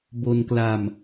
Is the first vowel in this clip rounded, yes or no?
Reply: yes